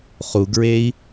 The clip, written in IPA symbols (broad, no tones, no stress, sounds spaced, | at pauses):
χ u ɡ ɹ e i̯